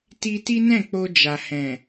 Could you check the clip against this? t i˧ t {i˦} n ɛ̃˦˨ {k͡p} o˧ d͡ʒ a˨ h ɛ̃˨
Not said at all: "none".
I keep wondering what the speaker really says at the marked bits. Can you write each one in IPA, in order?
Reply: i˦, k͡p

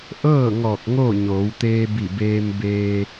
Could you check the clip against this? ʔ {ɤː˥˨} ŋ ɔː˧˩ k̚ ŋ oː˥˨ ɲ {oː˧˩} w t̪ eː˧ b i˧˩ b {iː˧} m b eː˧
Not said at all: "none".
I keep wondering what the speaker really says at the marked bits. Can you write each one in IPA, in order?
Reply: ɤː˥˨, oː˩˧, eː˧

